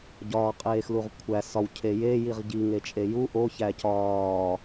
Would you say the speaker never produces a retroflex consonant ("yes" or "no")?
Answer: yes